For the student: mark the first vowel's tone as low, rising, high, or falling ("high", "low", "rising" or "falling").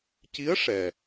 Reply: rising